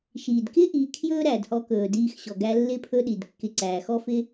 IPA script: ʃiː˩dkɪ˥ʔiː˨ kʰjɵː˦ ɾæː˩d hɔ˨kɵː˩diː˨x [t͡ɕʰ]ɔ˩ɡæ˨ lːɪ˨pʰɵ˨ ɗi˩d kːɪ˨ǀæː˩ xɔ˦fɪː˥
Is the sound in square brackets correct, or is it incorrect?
incorrect